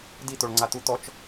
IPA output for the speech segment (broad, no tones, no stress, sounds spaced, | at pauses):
d i t̪ o ɭ ŋ͡ǀ a t̪ u t̪ ɔ t͡ʃ